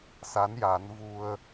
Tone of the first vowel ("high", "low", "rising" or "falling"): rising